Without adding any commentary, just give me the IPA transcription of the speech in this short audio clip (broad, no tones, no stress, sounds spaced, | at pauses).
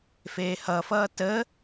f eː h ʌ f ʌː t ə